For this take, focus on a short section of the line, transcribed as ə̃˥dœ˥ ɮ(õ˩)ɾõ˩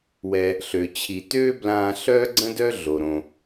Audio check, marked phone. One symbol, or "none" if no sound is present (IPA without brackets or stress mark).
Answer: o˩